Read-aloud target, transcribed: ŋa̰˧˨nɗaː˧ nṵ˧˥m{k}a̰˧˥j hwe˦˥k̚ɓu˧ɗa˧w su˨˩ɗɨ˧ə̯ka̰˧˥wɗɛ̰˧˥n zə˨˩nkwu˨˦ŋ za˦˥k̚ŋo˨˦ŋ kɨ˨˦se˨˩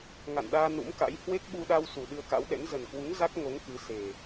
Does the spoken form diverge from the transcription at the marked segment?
no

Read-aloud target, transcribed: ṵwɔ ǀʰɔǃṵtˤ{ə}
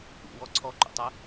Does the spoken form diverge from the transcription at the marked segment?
no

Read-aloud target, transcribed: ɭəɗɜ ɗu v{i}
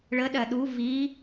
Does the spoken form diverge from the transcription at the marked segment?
no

